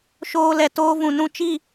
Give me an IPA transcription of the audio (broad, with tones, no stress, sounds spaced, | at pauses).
ʃ oː˧ l ɛ˨ t oː˦ v ũ˨ n ũ˦ t͡ʃ i˦˨